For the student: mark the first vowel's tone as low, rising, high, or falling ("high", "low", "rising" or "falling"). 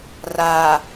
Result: low